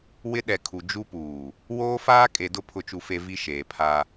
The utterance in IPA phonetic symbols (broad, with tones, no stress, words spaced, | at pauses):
wɪ˦ ɗɛ˨kʰu˨ d͡ʒu˦puː˨ | woː˦faː˦ kʼe˨dʊ˦ pʰʊ˦t͡ʃu˦fe˦ vi˦ ʃeː˨pʰa˦